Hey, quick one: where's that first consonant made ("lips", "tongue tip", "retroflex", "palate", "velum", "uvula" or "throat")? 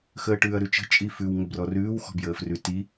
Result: velum